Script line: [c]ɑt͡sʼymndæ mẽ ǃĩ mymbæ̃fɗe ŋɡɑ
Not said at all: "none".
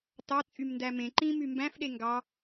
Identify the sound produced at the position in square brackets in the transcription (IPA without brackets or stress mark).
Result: t